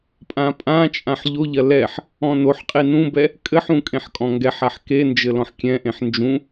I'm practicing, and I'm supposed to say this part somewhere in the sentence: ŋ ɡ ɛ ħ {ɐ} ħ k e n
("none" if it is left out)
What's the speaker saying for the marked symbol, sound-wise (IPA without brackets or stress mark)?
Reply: a